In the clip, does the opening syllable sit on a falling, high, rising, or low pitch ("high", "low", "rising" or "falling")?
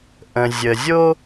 low